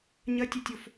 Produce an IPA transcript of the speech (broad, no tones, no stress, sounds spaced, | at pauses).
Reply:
ɲ ɐ tʲ ɘ tʲ o f